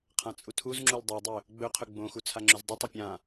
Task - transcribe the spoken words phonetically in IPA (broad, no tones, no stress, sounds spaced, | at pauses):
qʰ ã t͡sʼ u tʰ u z ŋ͡ǁ u l dˤ i dˤ ɵ | ɡ͡b ɵ qʰ ɵ ɡ͡b õ x u t͡sʰ a ŋ͡ǁ ʉ z dˤ ɨ tˤ ɐ pʲ ã